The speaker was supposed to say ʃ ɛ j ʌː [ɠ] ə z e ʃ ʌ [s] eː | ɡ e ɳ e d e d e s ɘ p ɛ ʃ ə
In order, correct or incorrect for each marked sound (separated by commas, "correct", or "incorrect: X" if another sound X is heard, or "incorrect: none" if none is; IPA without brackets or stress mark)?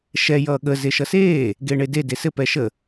correct, correct